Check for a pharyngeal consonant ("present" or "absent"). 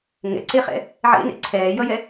present